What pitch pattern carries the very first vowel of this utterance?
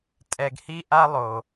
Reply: low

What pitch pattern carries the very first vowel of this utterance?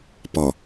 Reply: low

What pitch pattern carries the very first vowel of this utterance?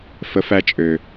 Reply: rising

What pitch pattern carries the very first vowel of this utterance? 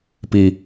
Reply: low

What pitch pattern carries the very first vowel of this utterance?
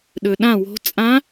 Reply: low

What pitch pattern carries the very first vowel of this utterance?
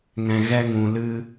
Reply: low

